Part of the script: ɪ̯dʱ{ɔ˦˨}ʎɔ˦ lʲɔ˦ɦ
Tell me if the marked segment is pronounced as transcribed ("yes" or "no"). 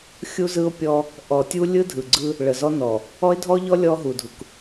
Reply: no